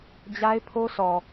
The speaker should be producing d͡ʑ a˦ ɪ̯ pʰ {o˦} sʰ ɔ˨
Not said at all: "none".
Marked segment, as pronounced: o˦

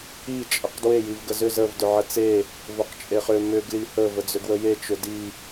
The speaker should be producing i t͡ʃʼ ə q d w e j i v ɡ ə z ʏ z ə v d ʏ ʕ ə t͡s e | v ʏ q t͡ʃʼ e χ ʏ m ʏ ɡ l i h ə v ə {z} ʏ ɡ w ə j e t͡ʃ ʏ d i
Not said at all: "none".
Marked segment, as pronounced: d͡z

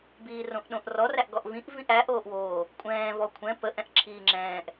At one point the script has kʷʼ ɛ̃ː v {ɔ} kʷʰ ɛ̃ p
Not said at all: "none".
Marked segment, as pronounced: ɔ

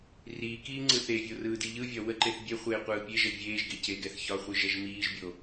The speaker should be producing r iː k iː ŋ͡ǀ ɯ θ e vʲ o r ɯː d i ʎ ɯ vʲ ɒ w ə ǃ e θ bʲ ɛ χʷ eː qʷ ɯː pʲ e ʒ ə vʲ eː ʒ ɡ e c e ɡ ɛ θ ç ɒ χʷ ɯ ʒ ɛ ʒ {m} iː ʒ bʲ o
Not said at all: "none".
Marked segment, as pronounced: m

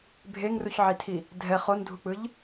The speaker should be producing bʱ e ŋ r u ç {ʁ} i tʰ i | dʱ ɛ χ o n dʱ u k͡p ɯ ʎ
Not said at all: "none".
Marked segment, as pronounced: ʕ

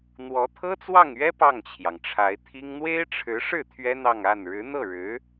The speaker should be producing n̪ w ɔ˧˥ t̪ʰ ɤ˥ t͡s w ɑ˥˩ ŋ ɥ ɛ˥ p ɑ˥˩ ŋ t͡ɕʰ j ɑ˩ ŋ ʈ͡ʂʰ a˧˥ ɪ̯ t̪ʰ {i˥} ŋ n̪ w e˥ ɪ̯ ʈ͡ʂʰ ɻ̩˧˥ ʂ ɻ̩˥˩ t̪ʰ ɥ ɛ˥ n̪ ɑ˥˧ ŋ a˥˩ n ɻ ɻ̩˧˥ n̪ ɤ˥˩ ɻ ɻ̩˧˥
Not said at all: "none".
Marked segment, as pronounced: i˥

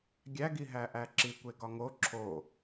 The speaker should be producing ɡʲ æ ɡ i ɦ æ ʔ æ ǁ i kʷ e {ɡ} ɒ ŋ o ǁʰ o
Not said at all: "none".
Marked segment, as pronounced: ɡ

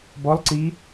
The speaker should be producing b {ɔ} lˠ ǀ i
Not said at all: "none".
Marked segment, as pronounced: ɔ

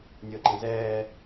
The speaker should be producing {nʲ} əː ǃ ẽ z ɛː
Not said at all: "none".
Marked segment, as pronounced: nʲ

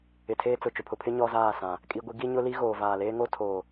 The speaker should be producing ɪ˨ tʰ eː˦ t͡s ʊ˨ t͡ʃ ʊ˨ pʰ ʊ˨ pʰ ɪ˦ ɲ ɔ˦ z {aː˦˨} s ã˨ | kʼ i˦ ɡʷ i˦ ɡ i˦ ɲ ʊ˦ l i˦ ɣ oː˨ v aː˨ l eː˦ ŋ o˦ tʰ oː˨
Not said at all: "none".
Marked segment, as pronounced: aː˦˨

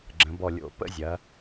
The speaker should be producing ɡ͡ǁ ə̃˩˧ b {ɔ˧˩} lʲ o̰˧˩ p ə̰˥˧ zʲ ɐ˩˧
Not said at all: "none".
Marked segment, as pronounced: ɔ˧˩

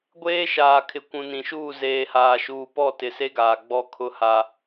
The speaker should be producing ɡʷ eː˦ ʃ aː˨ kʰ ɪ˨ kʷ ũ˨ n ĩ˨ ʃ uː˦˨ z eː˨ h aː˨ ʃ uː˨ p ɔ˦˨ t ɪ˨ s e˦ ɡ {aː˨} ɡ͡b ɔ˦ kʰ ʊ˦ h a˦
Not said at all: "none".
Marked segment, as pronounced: aː˨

